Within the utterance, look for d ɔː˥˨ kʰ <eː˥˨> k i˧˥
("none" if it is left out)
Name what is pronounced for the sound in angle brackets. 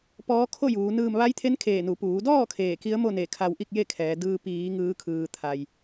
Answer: eː˧˩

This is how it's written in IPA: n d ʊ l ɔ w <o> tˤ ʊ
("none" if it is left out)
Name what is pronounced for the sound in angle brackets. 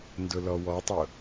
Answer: ɔ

